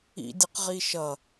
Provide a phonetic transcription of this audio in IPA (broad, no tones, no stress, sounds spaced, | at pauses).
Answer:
ḭ dʲ ə q ʁ i ʃ ʌ